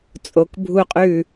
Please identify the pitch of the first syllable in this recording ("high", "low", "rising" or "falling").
low